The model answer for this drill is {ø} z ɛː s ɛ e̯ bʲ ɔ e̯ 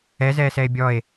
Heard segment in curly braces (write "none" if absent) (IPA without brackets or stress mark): ɛ